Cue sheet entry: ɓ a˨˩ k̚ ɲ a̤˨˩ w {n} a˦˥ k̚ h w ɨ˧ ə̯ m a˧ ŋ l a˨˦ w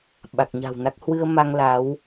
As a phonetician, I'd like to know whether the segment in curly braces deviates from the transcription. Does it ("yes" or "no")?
no